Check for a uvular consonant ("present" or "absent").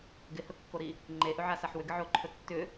absent